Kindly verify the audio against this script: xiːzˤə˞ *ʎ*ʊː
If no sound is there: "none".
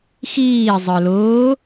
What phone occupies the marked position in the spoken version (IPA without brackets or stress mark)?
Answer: l